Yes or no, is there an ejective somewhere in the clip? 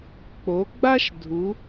no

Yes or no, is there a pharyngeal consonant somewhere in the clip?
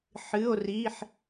yes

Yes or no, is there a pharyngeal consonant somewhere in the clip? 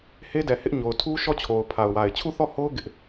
no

